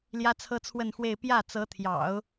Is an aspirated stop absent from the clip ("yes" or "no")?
no